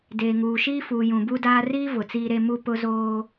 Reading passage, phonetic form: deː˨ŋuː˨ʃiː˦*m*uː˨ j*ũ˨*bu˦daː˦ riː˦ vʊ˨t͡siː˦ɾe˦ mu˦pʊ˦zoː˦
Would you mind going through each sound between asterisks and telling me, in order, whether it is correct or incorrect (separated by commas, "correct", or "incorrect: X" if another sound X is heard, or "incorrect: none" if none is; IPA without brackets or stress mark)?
incorrect: f, correct